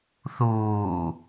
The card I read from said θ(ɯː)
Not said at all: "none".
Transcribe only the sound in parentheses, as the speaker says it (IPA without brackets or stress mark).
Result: uː